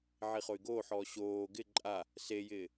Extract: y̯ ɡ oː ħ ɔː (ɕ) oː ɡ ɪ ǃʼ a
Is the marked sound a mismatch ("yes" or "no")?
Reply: no